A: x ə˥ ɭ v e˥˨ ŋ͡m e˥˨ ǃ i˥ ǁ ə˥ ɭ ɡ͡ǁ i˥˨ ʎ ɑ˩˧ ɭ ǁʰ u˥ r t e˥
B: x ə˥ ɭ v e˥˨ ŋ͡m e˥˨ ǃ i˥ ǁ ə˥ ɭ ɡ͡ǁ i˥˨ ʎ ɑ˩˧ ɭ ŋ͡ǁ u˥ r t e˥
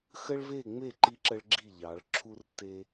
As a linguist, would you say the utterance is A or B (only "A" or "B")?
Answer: A